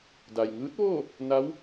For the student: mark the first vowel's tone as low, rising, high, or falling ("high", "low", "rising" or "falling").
low